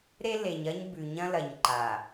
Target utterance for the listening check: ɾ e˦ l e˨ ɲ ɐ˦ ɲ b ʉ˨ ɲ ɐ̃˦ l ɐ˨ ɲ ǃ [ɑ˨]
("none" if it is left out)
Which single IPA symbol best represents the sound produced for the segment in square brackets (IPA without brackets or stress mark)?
a˨